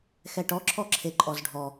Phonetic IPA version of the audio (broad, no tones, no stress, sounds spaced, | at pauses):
x ɛ ʈ ɔ ǁʰ ɔ ǁʰ e ǃʼ ɔ z ɖʱ ɔ